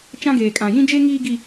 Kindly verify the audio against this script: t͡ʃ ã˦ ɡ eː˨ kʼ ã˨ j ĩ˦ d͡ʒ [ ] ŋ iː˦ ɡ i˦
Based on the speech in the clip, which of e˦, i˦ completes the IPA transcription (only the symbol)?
e˦